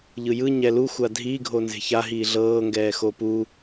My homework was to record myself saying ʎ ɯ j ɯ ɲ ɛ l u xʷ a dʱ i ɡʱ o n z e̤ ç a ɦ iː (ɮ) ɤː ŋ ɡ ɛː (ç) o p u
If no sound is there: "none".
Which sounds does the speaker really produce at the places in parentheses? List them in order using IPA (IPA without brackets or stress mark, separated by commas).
ɮ, x